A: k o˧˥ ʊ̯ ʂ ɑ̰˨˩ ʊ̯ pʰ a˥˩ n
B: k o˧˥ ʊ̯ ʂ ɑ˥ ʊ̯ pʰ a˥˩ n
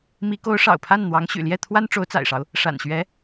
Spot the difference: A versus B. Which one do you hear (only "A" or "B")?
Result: A